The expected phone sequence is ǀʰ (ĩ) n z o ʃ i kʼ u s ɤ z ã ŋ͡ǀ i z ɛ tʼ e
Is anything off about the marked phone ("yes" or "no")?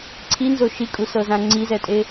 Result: yes